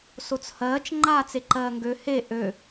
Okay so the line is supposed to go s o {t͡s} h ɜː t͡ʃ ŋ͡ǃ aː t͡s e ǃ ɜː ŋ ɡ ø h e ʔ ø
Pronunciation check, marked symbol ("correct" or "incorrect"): correct